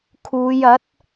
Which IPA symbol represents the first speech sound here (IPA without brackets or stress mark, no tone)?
kʰ